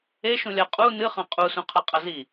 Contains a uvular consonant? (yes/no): yes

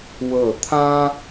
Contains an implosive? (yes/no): no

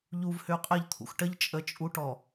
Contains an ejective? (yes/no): yes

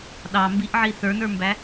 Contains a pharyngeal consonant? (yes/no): yes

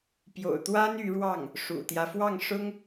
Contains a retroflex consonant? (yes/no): yes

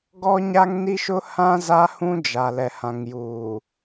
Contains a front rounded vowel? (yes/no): no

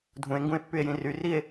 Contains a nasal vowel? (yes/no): yes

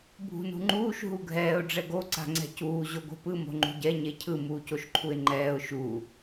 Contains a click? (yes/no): yes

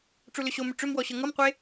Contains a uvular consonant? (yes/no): yes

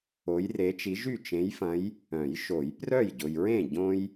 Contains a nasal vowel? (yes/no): yes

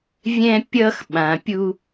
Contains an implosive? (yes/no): yes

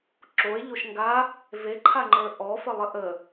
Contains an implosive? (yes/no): no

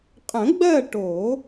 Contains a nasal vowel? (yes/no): yes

